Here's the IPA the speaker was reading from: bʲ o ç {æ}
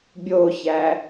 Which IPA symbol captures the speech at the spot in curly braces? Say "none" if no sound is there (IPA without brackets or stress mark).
æ